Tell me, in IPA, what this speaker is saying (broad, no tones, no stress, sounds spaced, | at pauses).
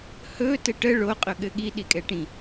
h ɵ t ɘ ʈ ə ɭ o qʼ ɵ ɠ ɘ ɠ i ɗ i kʼ ɛ ʈ ĩ